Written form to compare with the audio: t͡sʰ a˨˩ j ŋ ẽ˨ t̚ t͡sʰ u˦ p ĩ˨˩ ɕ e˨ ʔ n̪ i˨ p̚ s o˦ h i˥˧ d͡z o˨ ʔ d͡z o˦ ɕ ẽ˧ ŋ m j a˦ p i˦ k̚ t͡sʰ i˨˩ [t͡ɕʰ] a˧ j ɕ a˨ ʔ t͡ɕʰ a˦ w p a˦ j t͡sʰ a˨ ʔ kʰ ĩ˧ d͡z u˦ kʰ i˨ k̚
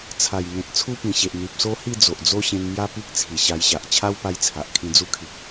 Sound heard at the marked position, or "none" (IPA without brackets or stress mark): ɕ